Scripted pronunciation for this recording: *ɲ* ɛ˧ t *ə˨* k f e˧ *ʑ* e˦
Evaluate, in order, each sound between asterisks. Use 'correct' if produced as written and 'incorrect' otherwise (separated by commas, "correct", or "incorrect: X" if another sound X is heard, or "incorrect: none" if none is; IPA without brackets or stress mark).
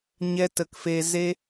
correct, correct, incorrect: z